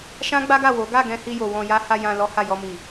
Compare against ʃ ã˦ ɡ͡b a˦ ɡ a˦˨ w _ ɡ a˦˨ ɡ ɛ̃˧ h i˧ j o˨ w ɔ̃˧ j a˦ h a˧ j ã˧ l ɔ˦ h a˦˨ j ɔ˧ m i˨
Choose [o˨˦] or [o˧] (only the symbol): o˨˦